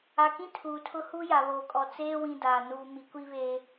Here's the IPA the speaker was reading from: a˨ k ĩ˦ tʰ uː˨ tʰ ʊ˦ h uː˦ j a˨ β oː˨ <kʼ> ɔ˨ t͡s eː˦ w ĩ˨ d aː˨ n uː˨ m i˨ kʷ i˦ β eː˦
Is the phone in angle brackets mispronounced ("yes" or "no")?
no